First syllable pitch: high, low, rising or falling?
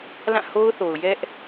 falling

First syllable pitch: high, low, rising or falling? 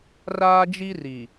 high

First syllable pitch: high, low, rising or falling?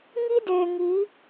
high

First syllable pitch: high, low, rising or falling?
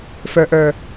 low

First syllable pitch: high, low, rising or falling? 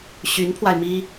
rising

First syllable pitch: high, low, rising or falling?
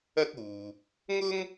high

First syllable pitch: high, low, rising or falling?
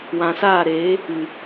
low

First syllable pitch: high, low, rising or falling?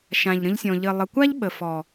low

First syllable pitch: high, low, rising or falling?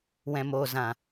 low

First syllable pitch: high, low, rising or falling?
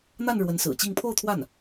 falling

